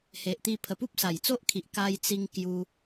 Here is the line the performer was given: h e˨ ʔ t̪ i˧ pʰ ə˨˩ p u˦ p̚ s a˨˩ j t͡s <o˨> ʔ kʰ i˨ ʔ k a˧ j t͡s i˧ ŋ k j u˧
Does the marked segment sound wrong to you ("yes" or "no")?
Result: yes